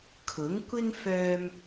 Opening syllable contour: rising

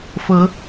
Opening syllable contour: rising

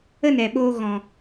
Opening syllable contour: high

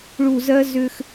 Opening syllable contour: low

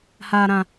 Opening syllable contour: low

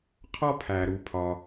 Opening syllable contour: high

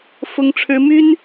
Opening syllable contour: high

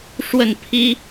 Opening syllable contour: falling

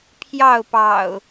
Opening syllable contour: falling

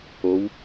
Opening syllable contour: rising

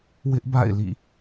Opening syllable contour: high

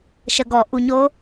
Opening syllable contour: low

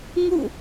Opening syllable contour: falling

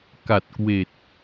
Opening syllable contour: low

